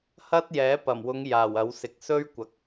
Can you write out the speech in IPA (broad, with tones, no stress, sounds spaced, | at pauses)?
h ɐ˥ t̚ j ɛː˨˥ p ɐ˨˩ m w ʊ˨˧ ŋ j aː˨˩ w ɐ˨˥ w s ɪ˨ k̚ s ɵ˥ ɥ kʷ ɐ˨˥ k̚